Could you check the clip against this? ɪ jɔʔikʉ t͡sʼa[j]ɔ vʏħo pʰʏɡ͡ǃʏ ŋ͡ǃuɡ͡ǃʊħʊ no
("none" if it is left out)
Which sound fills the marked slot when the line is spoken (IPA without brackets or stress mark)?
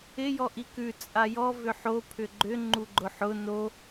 j